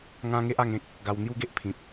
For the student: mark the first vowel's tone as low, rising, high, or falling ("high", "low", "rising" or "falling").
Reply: high